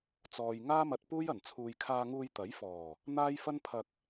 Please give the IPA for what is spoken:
t͡sɔː˨j ŋaː˥mɐ˧t̚puː˥jɐ˨˩n t͡sʰuː˨jkʰaː˧ŋuː˧j t̪ɐ˨˥j fɔː˨˩ | n̪aː˥j fɐ˥npʰɐ˧k̚

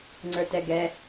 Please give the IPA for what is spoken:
ŋ͡ǀə˞tɛɡɛ

